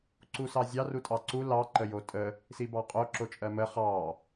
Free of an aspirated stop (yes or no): yes